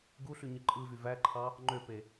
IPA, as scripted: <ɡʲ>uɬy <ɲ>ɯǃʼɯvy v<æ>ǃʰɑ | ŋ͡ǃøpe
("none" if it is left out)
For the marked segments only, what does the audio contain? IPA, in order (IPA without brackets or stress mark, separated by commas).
ɡ, ɲ, æ